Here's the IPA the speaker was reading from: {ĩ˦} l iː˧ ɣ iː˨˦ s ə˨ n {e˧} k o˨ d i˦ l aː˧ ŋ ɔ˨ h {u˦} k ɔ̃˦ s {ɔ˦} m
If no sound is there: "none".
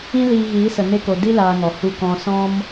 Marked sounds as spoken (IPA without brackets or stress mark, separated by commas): ĩ˦, e˧, u˦, ɔ̃˦